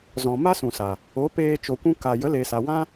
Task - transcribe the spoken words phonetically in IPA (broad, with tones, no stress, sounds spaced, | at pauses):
z ɔ̃˨ m a˦ s ũ˨ s a˨ | o˨˦ p eː˧ t͡ʃ o˨ kʷ ũ˧ k a˨ j ə˨˦ l e˨ s a˨ w ã˦